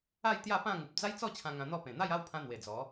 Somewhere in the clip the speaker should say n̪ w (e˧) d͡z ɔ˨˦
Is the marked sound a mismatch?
yes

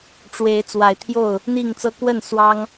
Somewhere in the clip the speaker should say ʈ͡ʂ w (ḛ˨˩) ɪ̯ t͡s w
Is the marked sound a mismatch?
yes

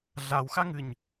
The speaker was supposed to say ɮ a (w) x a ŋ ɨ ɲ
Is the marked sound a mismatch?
no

